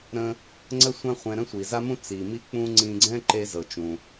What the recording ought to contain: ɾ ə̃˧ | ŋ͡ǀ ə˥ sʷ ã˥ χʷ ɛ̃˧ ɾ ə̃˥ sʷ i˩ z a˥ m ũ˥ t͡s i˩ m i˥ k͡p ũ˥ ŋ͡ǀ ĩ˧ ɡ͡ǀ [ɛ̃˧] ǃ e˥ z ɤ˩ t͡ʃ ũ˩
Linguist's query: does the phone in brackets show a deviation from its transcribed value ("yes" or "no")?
yes